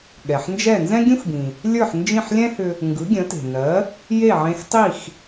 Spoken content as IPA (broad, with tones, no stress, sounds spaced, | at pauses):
ɠ ɛ˩ ħ n d͡ʒ ɛ˥˩ n z ɛ̃˥ ɡʲ ũ˥ x b ĩ˩ | lʲ ə˞˥˩ ħ n d͡ʒ ĩ˥˩ ħ lʲ ɛ̃˥ h ʏ˧ | ŋ ɡ ɯ˩˥ ɡʲ ə̃˩˥ t e̤˩ n ɜ˩˥ | j e˥˩ ʕ ẽ˧ x tˤ i˥˩ x